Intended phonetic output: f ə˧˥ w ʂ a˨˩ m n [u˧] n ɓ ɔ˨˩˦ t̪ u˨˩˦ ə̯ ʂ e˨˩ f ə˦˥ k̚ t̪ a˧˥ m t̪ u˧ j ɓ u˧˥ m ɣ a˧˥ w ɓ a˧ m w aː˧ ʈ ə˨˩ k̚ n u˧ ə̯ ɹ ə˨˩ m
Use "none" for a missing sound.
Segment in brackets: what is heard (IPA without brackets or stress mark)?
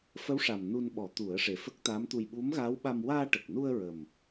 u˧